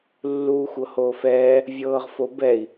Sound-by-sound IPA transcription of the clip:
lːuːxʷɤhoːfɛː | vʲɤːʁfobɛi̯

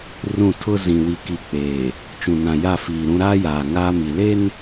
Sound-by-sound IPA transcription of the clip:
rũ˦˨tʰʊ˦ zĩ˨ wi˨ki˨ k͡peː˨ | t͡ʃũ˨nã˨ja˦˨ fiː˨ɾũ˦ ɾaː˦jaː˨ ŋaː˦mi˨ le˦n

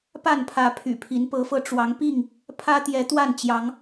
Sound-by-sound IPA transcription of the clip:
pa˥˨npʰä˨˦ pʰy̰˨˩pʰi˨˦npɤ˨˦fɤ˧ ʈ͡ʂwɑ˨˦ŋpi˥˨ŋ | pʰä˦t̪jɛ˨˦ t̪wa˥˨n t͡ɕjɑ˨˦ŋ

